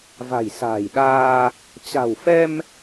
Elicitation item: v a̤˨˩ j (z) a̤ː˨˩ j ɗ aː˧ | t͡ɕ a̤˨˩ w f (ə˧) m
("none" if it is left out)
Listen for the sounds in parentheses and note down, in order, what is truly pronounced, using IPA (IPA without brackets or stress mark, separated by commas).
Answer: s, ɛ˧